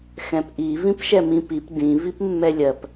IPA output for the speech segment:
x ɛ̃ p ʔ i v ĩ p ʃ ɛ m ĩ p i p d ĩ v i p mː ɛ lʲ ɜ p

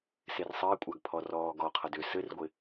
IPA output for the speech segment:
s e r sˤ ɘː kʷʼ a ɡ pʰ ɔ r ɔː ɡ ɔ qʰ ʌ d ʏ s ɘ r ɡʷ ɪ

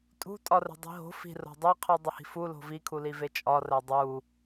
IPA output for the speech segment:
tʼ ṳ tʼ ɒ r e̤ dˤ i̤ ɦ o̤ f i̤ r o̤ dˤ e qʰ u dˤ e h i̤ f u l o̤ v i kʰ u l i v e t͡ʃʼ ɒ r æ dˤ u

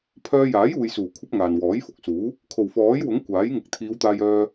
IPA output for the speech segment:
pʰ œː˧ j aː˨˥ j uː˨ j s uː˨˩ kʷʰ ɐ˥ p̚ ŋ aː˨ n w ɔː˨˥ j f ʊ˨˥ k̚ s uː˨˥ | kʰ o˨˩ w f ɔː˨˥ j w ʊ˨˥ ŋ kʷ aː˨˥ j ŋ ɪ˨ k̚ t̪ʰ iː˨˧ w t̪ aː˧ j œː˧

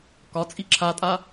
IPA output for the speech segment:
k ɒ t͡sʼ i ǁʰ a tʼ a

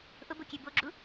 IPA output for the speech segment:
ʔ ʊ b o kʲ ɛ b o ɡ͡ǁ u

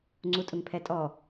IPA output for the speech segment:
ŋ͡ǀ u tʼ ʊ ŋ pʰ ɛ tʼ ɔ

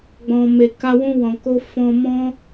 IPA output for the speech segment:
ɡ͡b ɔ̃˨ m e˨ k a˧ w ũ˧ w ɔ̃˨ k o˧ f ɔ̃˧ m ɔ̃˦

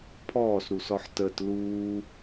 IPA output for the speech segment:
pʰ ɔː s ɾ u s ɔ ħ t ə t l uː

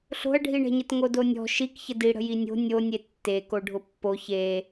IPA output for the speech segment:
ɬ o̤ ɐ̯ ɖʱ i ɳ ɛ̤ ɲ ə t ŋ o d o nʲ ɔ̤ ʃ i k ç ə d i ɽ ə̤ j i nʲ o̤ nʲ o nʲ e tː e k o ɖʱ ʊ pː o ç e

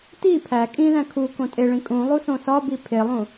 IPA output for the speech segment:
t i pʰ æ kʼ ĩ ð æ̃ kʰ u k õ tʼ e ɭ ĩ kʼ ũ lˠ u s õ s ɒ b i pʰ e lˠ ũ

